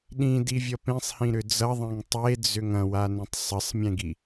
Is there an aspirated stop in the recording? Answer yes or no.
no